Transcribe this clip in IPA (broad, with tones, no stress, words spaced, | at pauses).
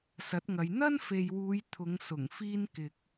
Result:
sɐ˨˥t̚ŋɐ˨˧j n̪ɐ˥nfe˨jwuː˨˧j t̪ʰʊ˨˧ŋ sʊ˨˩ŋfiː˧nkɪ˨k̚